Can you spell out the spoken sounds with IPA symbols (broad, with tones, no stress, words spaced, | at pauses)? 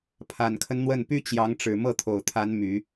pʰa˨˩nkʰə˦n n̪wə˥˩n py˥ t͡ɕjɑ˧˥ŋʈ͡ʂɻ̩˨˩ mɤ˥˩t̪ʰo˨˩ʊ̯ t̪ʰa˧˥n my˨˩˦